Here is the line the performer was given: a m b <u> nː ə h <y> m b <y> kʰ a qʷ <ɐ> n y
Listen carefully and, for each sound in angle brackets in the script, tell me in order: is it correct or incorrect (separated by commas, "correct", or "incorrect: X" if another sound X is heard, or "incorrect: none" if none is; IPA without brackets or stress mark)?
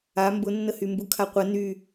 incorrect: ʊ, correct, incorrect: u, correct